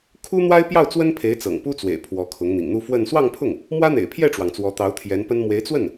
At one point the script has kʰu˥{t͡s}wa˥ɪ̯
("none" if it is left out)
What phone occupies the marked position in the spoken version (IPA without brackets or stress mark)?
n̪